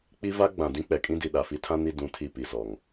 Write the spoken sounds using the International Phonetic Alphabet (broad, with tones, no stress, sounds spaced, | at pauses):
k͡p i˦ v a˦ ɡ͡b ã˨ d ĩ˦ k͡p ɛ˨ kʼ ĩ˦ d i˨ ɗ a˨ f i˦ tʰ ã˦ n i˦˨ d ũ˦˨ tʰ i˦˨ p i˨ z ɔ˨ ŋ